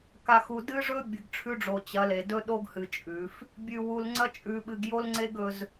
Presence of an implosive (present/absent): present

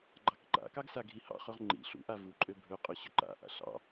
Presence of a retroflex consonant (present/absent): absent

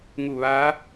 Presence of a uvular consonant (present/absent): absent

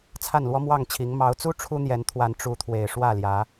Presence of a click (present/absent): absent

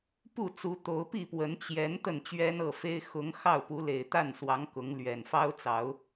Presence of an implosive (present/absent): absent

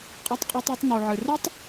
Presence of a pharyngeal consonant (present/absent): present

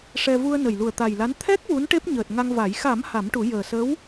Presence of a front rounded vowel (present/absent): absent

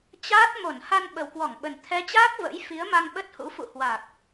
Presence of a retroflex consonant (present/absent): absent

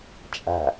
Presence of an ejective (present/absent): present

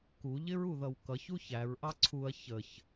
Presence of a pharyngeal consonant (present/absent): absent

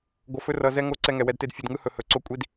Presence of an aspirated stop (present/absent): absent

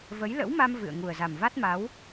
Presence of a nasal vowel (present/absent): absent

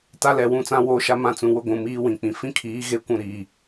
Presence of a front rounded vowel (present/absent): absent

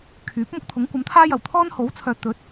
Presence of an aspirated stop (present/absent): present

